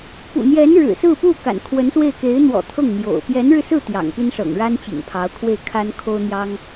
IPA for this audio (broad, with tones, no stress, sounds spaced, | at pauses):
p ṵ˨˩ n̪ j ɛ˧˥ n ɻ ɻ̩˨˩ s ɹ̩˥˧ p u˥˩ k a̰˨˩ n kʰ w ə˧˥ n s w e˥˩ ɪ̯ k e˧˥ ɪ̯ n̪ w ɔ̰˨˩ t̪ʰ ɤ˥˩ ŋ n̪ j o̰˨˩ ʊ̯ p j ɛ˧˥ n ɻ ɻ̩˧ s ɹ̩˥˩ t̪ j ɑ̰˨˩ ŋ p i˥ n ʂ ɤ̰˨˩ ŋ ɻ a˥ n t͡ɕ ḭ˨˩ ŋ pʰ ɑ˧˥ ʊ̯ kʰ w e˥˩ ɪ̯ kʰ a˥ n kʰ o˥ ʊ̯ n̪ j ɑ˥ ŋ